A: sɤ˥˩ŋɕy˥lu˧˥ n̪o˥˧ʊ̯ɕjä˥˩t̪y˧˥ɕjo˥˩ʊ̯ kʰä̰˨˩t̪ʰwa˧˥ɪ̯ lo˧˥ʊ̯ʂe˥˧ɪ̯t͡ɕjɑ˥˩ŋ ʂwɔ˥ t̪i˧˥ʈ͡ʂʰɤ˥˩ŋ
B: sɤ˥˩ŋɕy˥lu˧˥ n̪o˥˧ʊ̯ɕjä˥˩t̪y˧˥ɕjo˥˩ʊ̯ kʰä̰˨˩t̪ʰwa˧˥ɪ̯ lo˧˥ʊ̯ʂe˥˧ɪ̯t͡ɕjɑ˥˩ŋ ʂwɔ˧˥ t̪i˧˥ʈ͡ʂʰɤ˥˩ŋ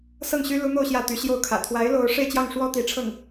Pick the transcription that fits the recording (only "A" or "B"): A